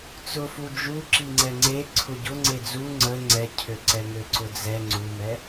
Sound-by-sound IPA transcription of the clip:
t͡sʊfu d͡ʒu ǁiŋ͡ǀɛŋ͡ǀe ǀʰʊɟʊ ŋ͡ǀed͡zu ŋ͡ǀə ŋ͡ǀɛcʰøǀɛŋø ǀʊd͡zɛ ŋ͡ǀumɛ

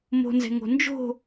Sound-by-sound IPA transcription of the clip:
mo̤nzɛ̤ ŋo̤nd͡ʒo̤

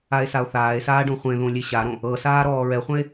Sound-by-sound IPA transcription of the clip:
ae̯sao̯θaːe̯saː ɖõχʷẽðõ lʲeɕaɾõ | ɤsaː ɾɔːɹɛχʷɛ̃e̯

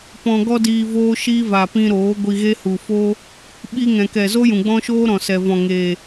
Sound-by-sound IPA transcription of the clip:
pɔ̃˧ɡɔ˦diː˧ voː˦ʃiː˦ va˨pĩ˧ ɾoː˨˦ ɡʷi˧ɣe˦hu˨ fo˦ | ɓi˧ŋɛ̃˨kɛ˨ zo˦jũ˨ɡ͡bɔ̃˦ʃoː˦ ɾɔ̃˨sɛ˨vɔ̃˨ŋeː˨

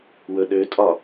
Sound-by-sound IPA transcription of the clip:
wɵɗøtʼɒ

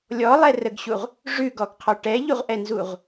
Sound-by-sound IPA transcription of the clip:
lʲɔlˠɛrəɡɕuʁ | ʐʉɡɔɡqʰɔ ʈɛʎuʁʔɛnzuʁ

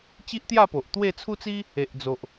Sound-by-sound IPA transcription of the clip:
t͡ɕi˦ʔt̪ja˥˧po˨ʔt̪we˥˧ t͡sʰu˦t͡si˦ | e˨ʔd͡zo˨ʔ

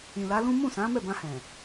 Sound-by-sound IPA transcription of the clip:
ĩ˨la˨˦lũ˦ mũ˦˨sã˨˦ mɛ˦˨bã˧hɛ̃˨

